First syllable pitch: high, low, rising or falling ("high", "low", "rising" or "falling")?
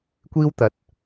high